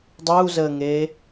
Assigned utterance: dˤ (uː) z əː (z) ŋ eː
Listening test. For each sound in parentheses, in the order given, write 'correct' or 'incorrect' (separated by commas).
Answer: correct, incorrect